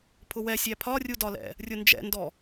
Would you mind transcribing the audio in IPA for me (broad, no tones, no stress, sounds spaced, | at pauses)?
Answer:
pʰ ʊ w ɛ sʲ æ pʰ ɒ rʲ u d ɒ l ɛ̰ | rʲ ʊ n d͡ʒ ɛ̰ n d ɔ